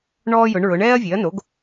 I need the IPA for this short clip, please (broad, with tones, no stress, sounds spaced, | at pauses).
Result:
ɳ ɔː˥ j ʊ˩˥ ɳ ɹ ʊ˩˥ ɳ ɛː˥ ɐ̯ vʲ e˩˥ ɐ̯ n o˩˥ ɡ